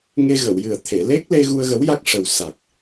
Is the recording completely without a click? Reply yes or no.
yes